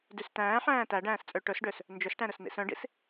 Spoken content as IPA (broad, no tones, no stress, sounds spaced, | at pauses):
d y s t æ̃ː ħ æ̃ː t æ ɖ æ̃ː s t͡sʼ ø ʈ ɵ s ɖ ø s | n d͡ʒ ɵ s ʈ æ̃ ɾ ɵ s n ḭ s œ̃ ɖ ḭ s